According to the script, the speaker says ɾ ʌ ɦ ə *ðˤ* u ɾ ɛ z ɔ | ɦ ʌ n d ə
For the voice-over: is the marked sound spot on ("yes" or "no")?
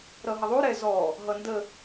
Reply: yes